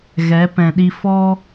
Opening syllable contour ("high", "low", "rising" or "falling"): rising